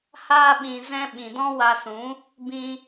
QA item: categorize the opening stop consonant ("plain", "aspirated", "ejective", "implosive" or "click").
implosive